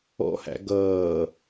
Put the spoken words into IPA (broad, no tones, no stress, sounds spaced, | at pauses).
ɔ̰ h æ̰ ɡ ʌː